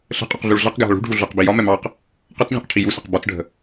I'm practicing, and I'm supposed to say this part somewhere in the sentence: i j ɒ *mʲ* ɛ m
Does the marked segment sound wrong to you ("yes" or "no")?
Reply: yes